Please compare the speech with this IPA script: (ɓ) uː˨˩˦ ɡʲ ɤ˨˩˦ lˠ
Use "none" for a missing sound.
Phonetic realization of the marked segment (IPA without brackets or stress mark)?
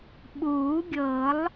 ɓ